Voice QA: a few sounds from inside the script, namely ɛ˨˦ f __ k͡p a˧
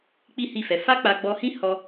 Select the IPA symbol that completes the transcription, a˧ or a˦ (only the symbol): a˦